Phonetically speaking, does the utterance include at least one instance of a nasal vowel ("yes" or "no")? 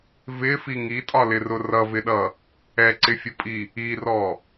no